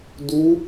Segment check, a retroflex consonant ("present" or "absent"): absent